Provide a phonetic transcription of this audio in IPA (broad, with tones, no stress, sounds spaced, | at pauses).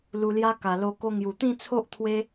l u˧ l j a˦ k a˨˩ l o˧ k o˧ ŋ j u˨˩ t̪ ĩ˥˧ t͡sʰ o˦ ʔ t̪ʰ w e˦